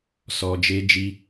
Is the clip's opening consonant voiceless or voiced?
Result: voiceless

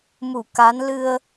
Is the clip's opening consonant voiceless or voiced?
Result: voiced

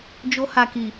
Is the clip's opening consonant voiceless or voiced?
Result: voiced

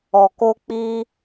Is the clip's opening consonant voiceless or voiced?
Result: voiceless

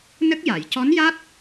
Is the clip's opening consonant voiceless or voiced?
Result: voiced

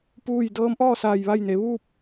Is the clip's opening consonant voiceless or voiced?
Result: voiceless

